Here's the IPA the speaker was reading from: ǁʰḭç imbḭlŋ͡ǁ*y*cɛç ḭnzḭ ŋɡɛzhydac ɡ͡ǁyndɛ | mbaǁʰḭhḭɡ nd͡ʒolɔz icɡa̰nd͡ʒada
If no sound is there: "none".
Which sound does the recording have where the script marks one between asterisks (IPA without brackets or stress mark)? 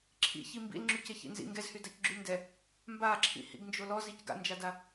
y